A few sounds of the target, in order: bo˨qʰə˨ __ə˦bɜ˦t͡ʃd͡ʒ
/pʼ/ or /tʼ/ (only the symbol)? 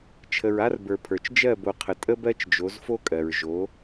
tʼ